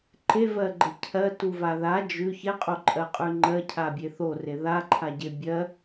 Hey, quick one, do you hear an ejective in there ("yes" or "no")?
yes